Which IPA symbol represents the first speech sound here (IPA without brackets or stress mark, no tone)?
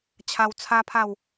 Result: t͡ɕʰ